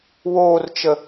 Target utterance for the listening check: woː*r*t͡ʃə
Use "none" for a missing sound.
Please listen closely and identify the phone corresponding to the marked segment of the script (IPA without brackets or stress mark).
r